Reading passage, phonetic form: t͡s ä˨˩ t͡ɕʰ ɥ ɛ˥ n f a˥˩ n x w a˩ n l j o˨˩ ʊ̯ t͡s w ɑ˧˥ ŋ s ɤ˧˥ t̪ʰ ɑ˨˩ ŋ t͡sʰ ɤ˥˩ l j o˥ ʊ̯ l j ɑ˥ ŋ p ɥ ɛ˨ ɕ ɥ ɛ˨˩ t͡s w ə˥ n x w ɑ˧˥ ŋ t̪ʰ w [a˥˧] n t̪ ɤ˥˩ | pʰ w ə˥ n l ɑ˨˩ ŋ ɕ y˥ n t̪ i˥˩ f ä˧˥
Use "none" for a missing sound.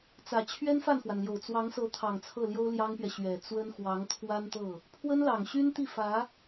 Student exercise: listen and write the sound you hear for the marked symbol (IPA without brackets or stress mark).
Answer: a˥